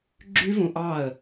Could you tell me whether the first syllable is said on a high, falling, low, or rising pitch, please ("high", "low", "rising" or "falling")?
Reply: high